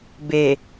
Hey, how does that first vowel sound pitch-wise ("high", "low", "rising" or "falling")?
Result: low